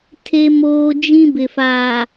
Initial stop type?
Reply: aspirated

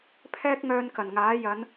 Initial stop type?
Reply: aspirated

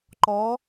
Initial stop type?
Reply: click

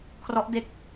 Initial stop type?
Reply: aspirated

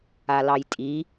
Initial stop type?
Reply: ejective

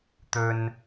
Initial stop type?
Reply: plain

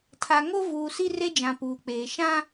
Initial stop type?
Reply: aspirated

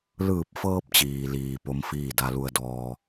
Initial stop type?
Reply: plain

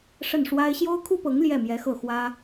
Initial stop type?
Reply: aspirated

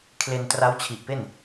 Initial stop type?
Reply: aspirated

